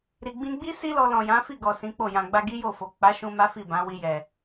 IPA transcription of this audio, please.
ɾ i˨ ɡ͡b ĩ˧ ɡ͡b i˦ s i˦ l ɔ˧ l ɔ̃˨ j ã˨˦ f i˦˨ ɡ ɔ˨ s ĩ˨˦ k͡p o˦˨ j ã˨ ɡ͡b a˧ ɡ i˦ j o˦˨ f o˨ k͡p a˨˦ ʃ ũ˧ m a˦ f i˦˨ b ã˨˦ w i˧ j ɛ˨

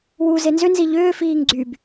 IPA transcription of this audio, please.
w u z e n z ʏ n z i ʎ ʏː f iː ŋ ɡ͡ǀ y b

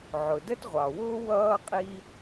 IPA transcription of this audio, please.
ʕ ʊ˩ d ə˥ t ʁʷ ɑ˩ w ʊː˥ w ʌː˥ qʼ i˥

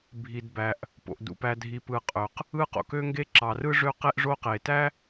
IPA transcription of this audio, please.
bʱ i˩ d b æ˩ ʔ | p o̰˩ ʔ d ṵ˩ p æ˩ dʱ i˩ p ɯ˩ qʼ ø˩ q | ɯ˥ q o̰˩ k ø˥ ŋ ɡ e˥ ǁ ɑ˩ r ɯ˥ ʐ ø˥ q e˥ ʔ ʐ o˥ q e˩ t æ˥

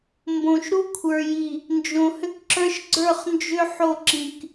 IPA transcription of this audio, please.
m b õ˨ ʃ ɾ u˦ kʷʰ ə˞˨ j i˨ | n d͡ʒ õ˨ h ʏ˦ k ǁ ə˞˦ ʃ ɡ͡ǀ ə˞˦˨ χ n d͡ʒ ʏ˦ ħ o˦˨ ǁ ĩ˨ k

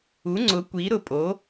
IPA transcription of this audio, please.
u˩˥ ŋ͡ǀ ʊ˩˥ kʷ i˩˥ ɾ ʊ˨ pʼ o˩˥

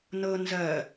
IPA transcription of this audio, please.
n ɤ n z ɜ

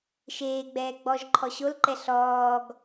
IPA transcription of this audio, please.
ʃ eː ɡ͡b ɛː ɡ͡b ɔ ʒ ǃʰ ɔ ɕ o l ǃ ɛ ɬ ɔː ɡ

